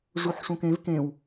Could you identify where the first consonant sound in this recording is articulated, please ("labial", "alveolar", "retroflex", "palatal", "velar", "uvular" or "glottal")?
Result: retroflex